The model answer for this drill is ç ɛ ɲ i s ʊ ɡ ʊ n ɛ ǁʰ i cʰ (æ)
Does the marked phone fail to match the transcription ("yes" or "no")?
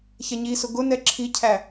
no